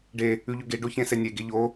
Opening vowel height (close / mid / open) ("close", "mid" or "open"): mid